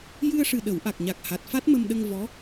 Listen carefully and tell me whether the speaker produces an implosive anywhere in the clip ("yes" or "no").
yes